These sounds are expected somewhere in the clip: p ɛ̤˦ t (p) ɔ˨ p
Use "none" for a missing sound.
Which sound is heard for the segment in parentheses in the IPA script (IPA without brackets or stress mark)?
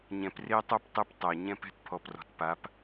pʰ